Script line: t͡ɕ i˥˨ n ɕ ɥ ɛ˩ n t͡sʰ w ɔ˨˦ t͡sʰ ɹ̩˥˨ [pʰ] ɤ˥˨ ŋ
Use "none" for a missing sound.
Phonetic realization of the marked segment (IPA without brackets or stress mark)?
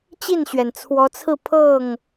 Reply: pʰ